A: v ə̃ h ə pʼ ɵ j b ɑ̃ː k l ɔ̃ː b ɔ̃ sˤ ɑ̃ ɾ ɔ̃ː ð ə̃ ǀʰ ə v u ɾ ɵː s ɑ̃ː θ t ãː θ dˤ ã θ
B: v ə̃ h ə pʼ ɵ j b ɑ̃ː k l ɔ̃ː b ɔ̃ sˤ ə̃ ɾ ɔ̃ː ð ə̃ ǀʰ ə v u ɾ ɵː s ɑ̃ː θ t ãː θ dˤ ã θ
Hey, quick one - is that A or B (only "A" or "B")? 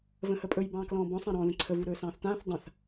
A